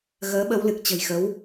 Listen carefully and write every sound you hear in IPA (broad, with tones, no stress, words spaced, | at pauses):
ɣəː˨˦ɓə˨˦wlɨ˨˩k̚ t͡ɕə̤˨˩jxə˨˦w